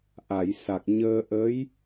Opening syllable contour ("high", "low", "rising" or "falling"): low